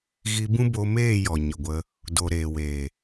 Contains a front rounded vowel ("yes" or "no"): no